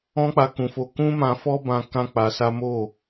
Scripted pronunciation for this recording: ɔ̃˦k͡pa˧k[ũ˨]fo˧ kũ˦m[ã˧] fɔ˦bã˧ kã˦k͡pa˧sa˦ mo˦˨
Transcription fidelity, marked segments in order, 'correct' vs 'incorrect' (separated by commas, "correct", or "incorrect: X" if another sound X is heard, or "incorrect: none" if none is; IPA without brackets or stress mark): correct, correct